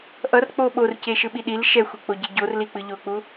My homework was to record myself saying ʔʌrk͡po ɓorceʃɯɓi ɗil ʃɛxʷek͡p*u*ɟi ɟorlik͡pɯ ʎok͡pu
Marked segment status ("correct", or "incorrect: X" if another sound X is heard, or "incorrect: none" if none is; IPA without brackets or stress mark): incorrect: o